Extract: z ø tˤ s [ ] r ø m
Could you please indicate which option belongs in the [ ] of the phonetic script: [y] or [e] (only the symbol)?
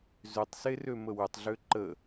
e